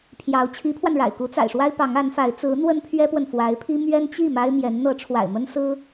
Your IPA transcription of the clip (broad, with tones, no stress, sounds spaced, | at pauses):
pʰ j ɑ˧˥ ʊ̯ t͡ɕʰ i˧˥ pʰ w a˧ n ɻ a̰˨˩ ɪ̯ k u˧˥ t͡s a̰˨˩ ɪ̯ ʂ w a˥ ɪ̯ p ɑ˧˥ ŋ a˧˥ n f a˧˥ ɪ̯ t͡s ɹ̩˧˥ n̪ w ə˥ n pʰ ɥ ɛ˥ p w ə˨ n f w a˧˥ ɪ̯ pʰ i˥ m ɥ ɛ˥ n t͡ɕ i˥˩ m a˥ ɪ̯ m j ɛ˧˥ n n̪ ɤ˧˥ ʈ͡ʂʰ w a̰˨˩ ɪ̯ m ə˥ n s ɹ̩˥